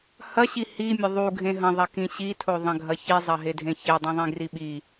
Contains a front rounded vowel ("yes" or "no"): no